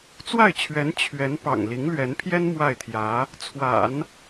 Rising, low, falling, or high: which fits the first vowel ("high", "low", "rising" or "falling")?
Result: falling